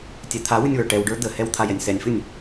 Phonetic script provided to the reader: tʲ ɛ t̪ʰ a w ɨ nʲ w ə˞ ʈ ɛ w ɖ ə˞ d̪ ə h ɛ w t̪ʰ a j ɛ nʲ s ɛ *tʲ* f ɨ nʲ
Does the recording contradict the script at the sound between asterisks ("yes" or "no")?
yes